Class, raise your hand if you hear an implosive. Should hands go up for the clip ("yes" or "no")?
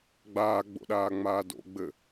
yes